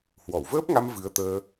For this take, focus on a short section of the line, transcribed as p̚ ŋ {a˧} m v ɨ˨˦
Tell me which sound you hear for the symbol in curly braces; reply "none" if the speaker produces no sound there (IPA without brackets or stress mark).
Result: a˧